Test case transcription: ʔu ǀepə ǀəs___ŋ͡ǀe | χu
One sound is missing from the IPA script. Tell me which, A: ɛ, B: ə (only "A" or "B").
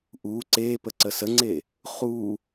B